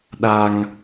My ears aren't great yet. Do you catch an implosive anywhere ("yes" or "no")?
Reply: yes